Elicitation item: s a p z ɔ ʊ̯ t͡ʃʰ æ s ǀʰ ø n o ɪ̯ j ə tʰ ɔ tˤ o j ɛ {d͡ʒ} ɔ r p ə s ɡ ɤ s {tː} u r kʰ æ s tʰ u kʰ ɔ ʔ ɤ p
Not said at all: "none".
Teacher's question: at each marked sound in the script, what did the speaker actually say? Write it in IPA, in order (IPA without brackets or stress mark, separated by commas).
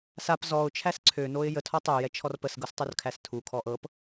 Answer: t͡ʃʰ, tˤ